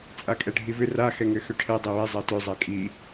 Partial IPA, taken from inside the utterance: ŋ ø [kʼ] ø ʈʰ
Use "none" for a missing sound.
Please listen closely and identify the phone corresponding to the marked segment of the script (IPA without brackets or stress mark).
x